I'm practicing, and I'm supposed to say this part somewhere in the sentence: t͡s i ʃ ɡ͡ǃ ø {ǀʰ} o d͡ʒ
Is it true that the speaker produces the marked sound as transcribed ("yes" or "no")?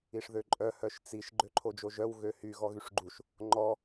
no